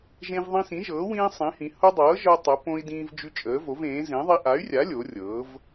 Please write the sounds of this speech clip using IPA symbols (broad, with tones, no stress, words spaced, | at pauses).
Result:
ʒẽ˦vðˤĩ˦ sĩ˨˥ʒɤː˨˥wĩː˦ sˤĩ˨˥hĩ˨˥ ho˦dˤɤː˨˥ ʒɤ˦tˤə˨˥ põ˦i̯dĩː˦v d͡ʒʉ˦t͡ʃʼəː˨˥vo˨˥vẽː˨˥ zẽ˨˥ðˤi˦ ʔa˨˥y̯rʲa˨˥ lʲo˨˥rʲɤː˨˥v